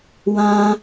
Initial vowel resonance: nasal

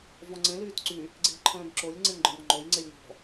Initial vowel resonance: nasal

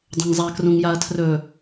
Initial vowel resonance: nasal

